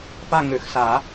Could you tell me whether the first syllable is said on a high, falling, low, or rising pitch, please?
falling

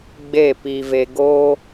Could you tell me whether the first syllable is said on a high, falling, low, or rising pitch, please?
falling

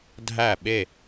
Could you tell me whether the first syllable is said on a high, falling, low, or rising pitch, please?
falling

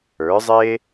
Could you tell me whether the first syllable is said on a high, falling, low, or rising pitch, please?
rising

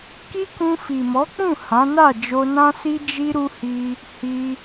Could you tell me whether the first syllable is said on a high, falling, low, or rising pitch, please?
high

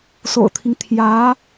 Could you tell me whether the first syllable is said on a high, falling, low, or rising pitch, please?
low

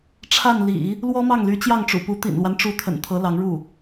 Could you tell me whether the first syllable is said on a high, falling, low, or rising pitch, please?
falling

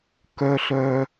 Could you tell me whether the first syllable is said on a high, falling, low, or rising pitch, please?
high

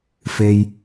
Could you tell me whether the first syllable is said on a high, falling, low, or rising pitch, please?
low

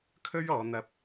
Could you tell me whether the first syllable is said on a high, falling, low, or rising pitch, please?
high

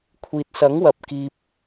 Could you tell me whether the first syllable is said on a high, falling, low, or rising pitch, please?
low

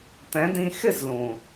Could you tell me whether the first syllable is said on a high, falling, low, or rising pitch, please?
rising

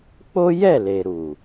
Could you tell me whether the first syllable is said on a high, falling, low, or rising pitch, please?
high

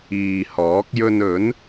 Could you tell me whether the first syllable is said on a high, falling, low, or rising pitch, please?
low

